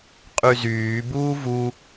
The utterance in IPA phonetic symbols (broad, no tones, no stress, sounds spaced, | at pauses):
qʼ y z yː b uː v u